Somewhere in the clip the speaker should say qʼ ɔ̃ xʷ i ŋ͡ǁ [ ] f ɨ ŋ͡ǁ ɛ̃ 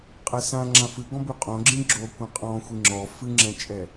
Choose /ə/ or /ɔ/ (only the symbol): ɔ